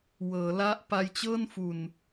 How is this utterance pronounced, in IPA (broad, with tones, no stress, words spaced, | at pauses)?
wɤː˩˦la˦˥ʔ pa˧jt͡ɕɤː˥˩nfu˨˩n